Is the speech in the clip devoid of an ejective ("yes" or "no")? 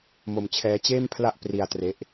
yes